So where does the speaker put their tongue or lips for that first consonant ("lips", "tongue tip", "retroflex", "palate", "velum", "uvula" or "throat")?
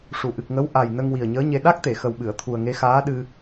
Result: retroflex